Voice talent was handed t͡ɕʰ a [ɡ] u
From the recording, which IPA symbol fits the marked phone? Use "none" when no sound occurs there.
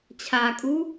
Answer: kʼ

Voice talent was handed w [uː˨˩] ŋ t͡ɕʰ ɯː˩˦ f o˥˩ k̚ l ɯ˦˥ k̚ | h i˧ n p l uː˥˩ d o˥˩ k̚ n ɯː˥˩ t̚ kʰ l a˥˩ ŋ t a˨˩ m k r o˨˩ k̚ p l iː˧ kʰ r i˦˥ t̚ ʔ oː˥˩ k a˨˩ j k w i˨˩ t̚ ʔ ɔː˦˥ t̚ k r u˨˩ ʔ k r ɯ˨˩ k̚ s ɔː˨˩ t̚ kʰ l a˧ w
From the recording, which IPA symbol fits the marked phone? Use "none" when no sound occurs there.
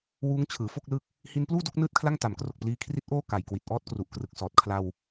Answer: uː˦˥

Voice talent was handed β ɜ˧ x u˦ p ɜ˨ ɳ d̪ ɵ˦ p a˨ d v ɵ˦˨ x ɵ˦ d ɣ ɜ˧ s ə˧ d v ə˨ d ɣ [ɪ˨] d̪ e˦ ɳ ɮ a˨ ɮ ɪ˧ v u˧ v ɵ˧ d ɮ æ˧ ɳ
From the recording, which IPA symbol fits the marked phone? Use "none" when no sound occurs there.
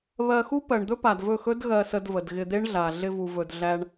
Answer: ɪ˧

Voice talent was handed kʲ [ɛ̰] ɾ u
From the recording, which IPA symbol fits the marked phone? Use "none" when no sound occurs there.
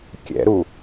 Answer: ɛ̰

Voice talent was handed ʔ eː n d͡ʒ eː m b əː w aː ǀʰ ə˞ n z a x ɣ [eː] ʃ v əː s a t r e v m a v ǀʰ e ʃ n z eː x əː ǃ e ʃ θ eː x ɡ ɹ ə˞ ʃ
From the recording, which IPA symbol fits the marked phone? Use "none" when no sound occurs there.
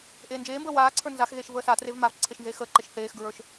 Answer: eː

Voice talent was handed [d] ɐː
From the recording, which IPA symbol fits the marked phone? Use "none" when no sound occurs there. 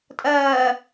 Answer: tʼ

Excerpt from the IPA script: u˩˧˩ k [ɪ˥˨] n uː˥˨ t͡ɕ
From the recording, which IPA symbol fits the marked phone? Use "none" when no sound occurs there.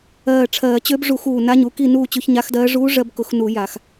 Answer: i˥˨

